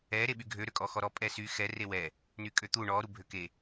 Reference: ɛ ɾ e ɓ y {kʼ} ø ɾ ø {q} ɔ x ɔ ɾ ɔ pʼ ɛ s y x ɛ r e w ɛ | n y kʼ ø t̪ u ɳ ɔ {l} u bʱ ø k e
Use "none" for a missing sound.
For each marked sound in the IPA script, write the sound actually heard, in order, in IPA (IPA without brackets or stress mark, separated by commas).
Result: ɡʱ, kʼ, ɾ